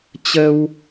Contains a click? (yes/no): no